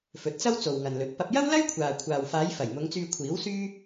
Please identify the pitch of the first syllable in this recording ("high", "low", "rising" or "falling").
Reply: rising